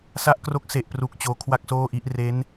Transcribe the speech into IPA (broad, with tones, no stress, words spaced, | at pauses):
sa˦˥ʔkro˦˥k̚ se˨˩ʔpru˨˩k̚ t͡ɕoː˧kʰwa˥˩k̚soː˥˩ʔi˦˥ʔ re˦˥n